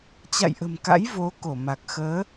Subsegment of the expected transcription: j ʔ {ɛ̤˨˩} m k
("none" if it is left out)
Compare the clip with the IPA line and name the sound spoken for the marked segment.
ə̤˨˩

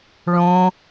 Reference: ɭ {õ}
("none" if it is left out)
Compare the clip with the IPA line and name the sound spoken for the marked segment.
õ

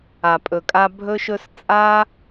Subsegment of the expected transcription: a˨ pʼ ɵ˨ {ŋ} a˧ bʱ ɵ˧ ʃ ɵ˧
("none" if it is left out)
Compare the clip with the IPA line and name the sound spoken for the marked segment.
kʼ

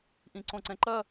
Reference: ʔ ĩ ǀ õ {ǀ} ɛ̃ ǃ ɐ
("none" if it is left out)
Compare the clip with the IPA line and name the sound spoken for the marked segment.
ǀ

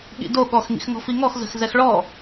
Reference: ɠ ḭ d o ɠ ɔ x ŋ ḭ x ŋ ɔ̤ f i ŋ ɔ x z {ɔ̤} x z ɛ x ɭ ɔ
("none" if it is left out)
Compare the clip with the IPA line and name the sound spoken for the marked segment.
ə̤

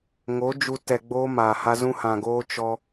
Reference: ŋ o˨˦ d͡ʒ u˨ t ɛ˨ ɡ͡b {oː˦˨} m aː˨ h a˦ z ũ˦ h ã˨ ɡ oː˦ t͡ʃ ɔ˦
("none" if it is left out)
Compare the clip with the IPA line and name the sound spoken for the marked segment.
oː˦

